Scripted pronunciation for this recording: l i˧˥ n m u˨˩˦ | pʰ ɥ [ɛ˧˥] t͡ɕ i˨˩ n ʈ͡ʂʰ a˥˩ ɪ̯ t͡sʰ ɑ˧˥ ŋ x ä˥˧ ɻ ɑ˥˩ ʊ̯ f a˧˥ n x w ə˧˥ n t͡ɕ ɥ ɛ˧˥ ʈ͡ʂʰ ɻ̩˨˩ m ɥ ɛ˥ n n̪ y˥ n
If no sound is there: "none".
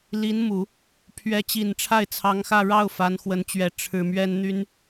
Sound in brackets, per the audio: ɛ˧˥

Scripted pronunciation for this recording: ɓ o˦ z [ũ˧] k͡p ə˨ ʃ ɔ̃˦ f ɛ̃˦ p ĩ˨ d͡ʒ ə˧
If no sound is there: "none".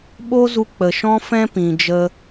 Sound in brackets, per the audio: u˧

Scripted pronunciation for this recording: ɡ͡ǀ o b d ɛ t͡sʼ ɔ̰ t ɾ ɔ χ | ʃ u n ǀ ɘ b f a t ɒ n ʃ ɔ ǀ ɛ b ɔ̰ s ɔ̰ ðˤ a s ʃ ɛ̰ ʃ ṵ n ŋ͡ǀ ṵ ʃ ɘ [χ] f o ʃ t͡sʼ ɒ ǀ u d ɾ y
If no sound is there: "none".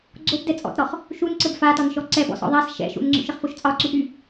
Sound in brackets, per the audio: χ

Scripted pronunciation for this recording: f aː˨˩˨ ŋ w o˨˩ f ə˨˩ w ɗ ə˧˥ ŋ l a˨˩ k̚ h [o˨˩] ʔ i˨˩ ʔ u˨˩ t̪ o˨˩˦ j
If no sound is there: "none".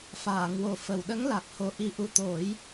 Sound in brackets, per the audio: o˨˩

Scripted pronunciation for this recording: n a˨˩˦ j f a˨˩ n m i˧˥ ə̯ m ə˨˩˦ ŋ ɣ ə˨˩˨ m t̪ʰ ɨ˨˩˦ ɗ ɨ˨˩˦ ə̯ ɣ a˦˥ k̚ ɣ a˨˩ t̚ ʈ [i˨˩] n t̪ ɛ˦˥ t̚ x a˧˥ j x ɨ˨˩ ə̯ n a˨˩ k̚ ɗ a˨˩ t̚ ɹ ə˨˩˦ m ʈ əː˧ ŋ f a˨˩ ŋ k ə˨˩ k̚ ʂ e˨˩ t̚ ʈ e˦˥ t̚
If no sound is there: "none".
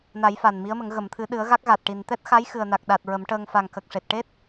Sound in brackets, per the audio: i˨˩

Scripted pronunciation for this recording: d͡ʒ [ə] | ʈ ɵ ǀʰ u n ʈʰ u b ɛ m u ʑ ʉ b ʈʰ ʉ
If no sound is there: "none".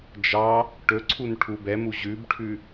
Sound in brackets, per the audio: ɑ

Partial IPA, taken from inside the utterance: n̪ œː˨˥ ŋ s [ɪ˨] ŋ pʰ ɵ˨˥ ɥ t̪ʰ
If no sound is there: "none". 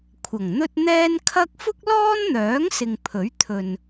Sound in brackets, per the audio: ɪ˨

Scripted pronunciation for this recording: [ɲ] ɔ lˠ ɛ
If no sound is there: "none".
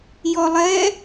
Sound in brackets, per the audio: j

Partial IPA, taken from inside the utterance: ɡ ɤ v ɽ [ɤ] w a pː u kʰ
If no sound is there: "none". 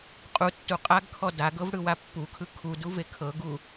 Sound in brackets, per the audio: ɯ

